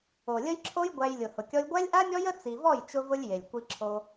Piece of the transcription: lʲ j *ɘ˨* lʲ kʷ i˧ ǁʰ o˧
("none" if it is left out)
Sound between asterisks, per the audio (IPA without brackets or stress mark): e˨